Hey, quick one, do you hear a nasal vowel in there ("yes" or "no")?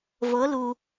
no